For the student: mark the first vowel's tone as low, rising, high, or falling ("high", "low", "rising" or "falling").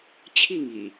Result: falling